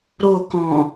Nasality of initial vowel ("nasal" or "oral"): oral